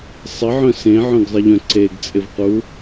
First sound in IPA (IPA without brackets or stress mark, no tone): sˤ